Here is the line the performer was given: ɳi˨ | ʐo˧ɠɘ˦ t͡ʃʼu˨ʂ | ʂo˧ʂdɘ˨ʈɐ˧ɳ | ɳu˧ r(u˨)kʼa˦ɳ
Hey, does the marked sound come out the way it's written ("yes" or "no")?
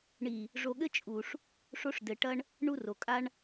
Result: no